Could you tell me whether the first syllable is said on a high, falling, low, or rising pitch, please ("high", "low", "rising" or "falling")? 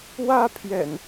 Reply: high